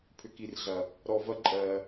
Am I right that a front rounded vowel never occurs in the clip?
no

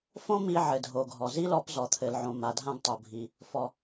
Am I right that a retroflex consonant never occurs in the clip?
yes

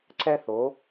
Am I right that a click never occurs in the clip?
no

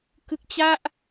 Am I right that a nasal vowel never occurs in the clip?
yes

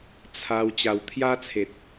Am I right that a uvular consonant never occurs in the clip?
yes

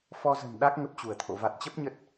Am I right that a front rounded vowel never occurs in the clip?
yes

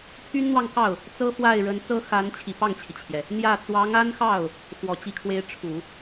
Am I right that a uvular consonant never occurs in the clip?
yes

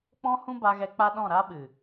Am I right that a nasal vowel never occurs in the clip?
no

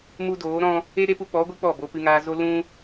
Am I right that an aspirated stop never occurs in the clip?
yes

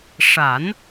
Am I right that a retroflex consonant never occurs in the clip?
no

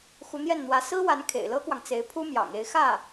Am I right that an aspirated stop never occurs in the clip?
no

